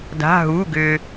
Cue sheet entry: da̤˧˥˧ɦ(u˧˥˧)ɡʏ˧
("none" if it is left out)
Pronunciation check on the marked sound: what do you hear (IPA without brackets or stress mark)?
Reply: u˧˥˧